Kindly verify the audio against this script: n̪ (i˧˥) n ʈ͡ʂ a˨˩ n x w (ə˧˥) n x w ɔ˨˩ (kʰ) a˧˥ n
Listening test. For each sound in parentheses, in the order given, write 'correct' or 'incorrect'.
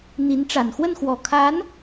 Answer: correct, incorrect, correct

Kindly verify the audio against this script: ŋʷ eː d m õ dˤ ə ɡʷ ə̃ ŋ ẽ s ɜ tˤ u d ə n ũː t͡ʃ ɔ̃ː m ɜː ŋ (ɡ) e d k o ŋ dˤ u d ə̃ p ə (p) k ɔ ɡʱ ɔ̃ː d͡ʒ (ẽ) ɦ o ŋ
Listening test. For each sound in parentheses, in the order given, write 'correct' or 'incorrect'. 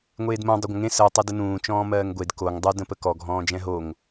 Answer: incorrect, incorrect, incorrect

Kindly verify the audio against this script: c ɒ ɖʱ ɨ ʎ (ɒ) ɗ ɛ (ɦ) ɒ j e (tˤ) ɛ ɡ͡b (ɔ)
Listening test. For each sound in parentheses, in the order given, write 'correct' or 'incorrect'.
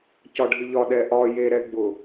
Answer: correct, incorrect, incorrect, incorrect

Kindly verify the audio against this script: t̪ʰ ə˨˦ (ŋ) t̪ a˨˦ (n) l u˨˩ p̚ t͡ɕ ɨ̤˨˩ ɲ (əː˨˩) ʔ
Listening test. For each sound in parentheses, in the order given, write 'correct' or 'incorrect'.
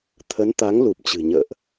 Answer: incorrect, incorrect, incorrect

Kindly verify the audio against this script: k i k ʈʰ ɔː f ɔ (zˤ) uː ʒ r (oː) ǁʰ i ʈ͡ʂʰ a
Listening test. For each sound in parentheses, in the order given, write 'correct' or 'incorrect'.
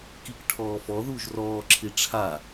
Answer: incorrect, incorrect

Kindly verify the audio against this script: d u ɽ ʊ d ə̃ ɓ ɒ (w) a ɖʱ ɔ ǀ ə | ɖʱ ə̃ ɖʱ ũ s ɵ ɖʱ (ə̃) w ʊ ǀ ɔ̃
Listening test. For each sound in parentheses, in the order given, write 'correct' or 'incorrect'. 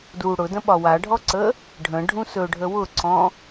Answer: correct, incorrect

